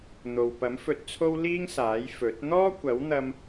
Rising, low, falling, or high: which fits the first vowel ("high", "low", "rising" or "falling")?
low